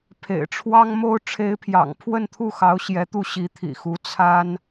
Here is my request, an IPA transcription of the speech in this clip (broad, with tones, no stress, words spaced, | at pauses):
pʰḛ˨˩ɪ̯ʈ͡ʂʰwɑ˥ŋmo˥ʊ̯ ʈ͡ʂʰe˧˥ɪ̯pʰjɑ̰˨˩ŋ pʰwə˥˧nt̪ʰu˥˩xɑ˧˥ʊ̯ ɕjɛ˧˥t̪u˥˩ ɕi˧˥t̪ʰḭ˨˩xu˧˥ t͡sʰa˥n